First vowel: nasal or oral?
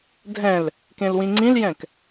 nasal